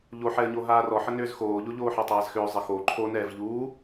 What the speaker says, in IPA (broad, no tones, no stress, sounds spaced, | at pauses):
ʎ o ħ ɛ ə̯ ɲ o ɦ aː r ɔ ħ ə n ʏː z x oː ʎ o ʎ oː ħ a tˤ aː z x ʏː zˤ ə x o ǃʰ o n ɛː v ʎ uː